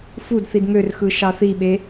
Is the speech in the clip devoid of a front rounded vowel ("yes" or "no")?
no